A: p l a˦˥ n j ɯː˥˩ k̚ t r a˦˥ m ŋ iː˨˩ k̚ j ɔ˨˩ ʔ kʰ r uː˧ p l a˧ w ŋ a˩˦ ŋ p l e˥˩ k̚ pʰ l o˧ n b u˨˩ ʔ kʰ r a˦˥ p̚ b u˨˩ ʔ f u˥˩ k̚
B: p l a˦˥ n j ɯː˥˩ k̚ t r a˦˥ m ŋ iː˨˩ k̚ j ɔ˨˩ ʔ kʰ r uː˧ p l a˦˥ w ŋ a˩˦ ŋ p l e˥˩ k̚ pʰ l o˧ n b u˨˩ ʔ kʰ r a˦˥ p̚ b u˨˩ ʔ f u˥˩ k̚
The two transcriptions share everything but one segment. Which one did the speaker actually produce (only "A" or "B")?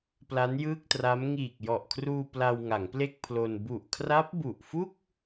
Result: A